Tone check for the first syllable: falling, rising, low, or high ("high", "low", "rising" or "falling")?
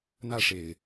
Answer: falling